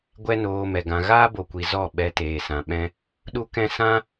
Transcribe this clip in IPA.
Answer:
ɡʷ ɛ˦ n oː˧ m ɛ˨ ɡ ã˧ ɣ aː˦ b o˨ kʷ i˨ z ɔ˦˨ ɓ ɛ˧ t eː˨ s ã˨ ɓ ɛ̃˦ | ɗ u˦ k ɛ̃˦ s ã˦

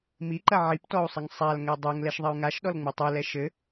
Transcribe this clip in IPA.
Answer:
m i ǃ ɐ ʕ i p t ɔ u̯ sˤ ɘ ŋ sˤ a l ŋ ɛ dˤ o ŋ l ɛ ʃ ðˤ ɐ y̯ ŋ a ʃ ɗ ɔ l ŋ͡m u tˤ u l ɛ ʃ ɘ

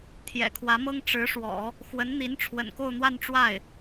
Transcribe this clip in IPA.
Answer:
t̪ʰ j ɛ̰˨˩ kʰ w ä˧˥ m ɤ˥ ŋ ʈ͡ʂ ɻ̩˧˥ ʂ w ɔ̰˨˩˦ | x w ə˧˥ n n̪ i˧˥ n ʈ͡ʂʰ w ə̰˨˩ n k o˥˧ ʊ̯ n̪ w a˥˧ n ʈ͡ʂ w a˥˩ ɪ̯

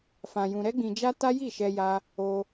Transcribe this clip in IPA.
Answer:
f ã˧ j ũ˧ ɾ ɛ˦ ɡ͡b ĩ˧ d͡ʒ a˦ t a˦ j i˦˨ ʃ ɛ˧ j a˧ | o˧

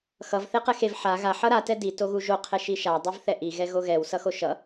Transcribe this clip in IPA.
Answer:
x ʌ v θ e q ɛ x e v ħ a ɣ a ħ ʌ ɾ a t ɛ d i t o ɣ u ʒ o qʰ ɛ ʃ i ʃ a dˤ ɯ v θ ɛ ʔ i ɣ ɛ ɣ o ɣ ɛ w s ʌ x o ʃ ʌ

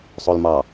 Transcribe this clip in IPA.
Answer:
sˤ o l m ɑ

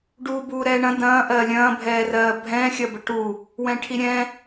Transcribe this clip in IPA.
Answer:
ɖ uː b uː ɾ ɛː ɳ ɐ̃ d ɐ̃ː ʔ ɜː lʲ ɐ̃ː bʱ ɛː r ɜː bʱ ɛ̃ xʲ ɐ b ə ʈ u | w ɛ̃ ʈʰ i ɾʲ ɛ̃

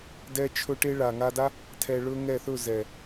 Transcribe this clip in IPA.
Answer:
d ɛ˦ t͡ʃʰ ɵ˦ ʈ e˦ ɭ a˨ ŋ a˧ d a˦ | tʰ ɛ˧ ɭ ɵ˦ ŋ ɛ˦˨ θ ɵ˦˨ z ɛ˨

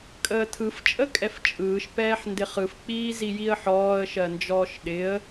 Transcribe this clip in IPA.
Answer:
kʼ əː tʰ ɯ f t͡ʃʼ ə kʼ ɛ f t͡ʃʼ ɯː ʃ p ɛː ħ n d ɪ χ ɯ f k͡p iː z i j i ə̯ ħ ɔː ə̯ ʃ ɜ n d͡ʒ ɔː ʃ ɗ ɪ ə̯

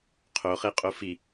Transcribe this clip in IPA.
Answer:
qʰ o χ e qʼ o f i

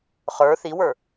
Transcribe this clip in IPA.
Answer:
χ ə˞ θ i w ə˞

